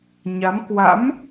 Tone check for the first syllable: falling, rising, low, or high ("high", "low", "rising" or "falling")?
rising